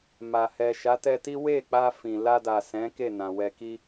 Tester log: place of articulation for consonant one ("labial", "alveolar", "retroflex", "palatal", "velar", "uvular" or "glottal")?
labial